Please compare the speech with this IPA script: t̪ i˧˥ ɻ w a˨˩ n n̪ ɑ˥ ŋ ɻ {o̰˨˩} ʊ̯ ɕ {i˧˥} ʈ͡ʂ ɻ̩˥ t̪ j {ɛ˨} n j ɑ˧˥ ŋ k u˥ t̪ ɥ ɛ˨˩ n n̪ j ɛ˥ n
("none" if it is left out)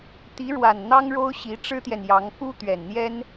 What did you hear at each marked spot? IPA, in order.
o˥, i˧˥, ɛ˨

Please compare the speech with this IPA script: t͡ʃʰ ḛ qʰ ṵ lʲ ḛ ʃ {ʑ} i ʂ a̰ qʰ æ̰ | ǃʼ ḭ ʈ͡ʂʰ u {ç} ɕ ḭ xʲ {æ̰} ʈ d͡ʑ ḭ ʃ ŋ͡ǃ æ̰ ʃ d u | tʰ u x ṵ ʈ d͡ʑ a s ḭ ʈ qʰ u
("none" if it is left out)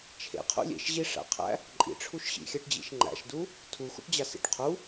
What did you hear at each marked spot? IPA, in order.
ʑ, ʃ, æ

